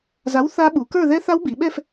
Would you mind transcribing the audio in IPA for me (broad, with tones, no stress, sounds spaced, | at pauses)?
z a˨˥ w θ a˦˥ ɓ u˩˧ k ə˞˥˧ ð ɛ˦˥ θ a˦˥ w b i˩˧ ɓ ɛ˥˧ f